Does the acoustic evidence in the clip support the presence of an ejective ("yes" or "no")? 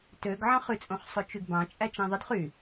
yes